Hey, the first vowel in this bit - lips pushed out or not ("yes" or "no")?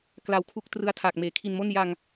no